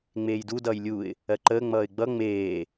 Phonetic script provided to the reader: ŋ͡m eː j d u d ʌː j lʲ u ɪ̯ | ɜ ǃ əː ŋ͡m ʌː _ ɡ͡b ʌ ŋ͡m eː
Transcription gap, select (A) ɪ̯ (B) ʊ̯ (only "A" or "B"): A